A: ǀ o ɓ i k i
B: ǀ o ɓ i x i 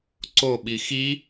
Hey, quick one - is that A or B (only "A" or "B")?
B